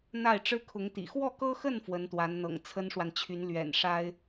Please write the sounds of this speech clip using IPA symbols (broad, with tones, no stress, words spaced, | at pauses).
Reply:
n̪a˥˩ɪ̯ʈ͡ʂɻ̩˥kʰʊ˧˥ŋt̪ḭ˨˩ xwɔ˥˩kɤ˥xə˥˩n fwə˧˥nt̪wa˧˥nn̪ɤ̰˨˩ŋ t͡sʰə˥nʂwa˨nt͡ɕʰy˧˥n lɥɛ̰˨˩nʂa˥ɪ̯